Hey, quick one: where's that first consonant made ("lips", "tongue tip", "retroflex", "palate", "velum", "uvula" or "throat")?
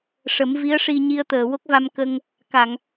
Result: retroflex